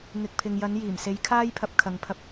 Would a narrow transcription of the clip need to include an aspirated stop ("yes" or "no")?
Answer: yes